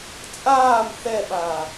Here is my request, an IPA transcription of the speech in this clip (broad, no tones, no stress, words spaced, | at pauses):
t͡sʼaːm θɛɓaː